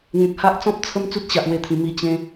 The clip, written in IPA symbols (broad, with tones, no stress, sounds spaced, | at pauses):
ŋ ẽ˨ k̚ h a˦ ʔ t͡s ɔ̃˦ p̚ t͡sʰ ə˦ m t͡s u˦ t̚ ɕ a˨ ʔ w e˧ t̪ʰ ĩ˨˩ m i˧ t͡ɕ ẽ˧